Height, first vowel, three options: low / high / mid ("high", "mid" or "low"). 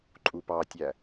high